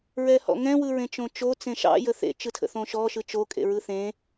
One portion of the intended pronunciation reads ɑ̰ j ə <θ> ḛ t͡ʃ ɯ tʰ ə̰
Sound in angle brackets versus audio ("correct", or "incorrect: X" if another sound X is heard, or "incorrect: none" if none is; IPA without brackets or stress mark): correct